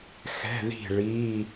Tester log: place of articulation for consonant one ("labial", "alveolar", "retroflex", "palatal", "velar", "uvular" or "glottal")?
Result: velar